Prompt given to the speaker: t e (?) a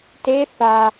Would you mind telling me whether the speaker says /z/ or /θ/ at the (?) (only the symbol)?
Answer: θ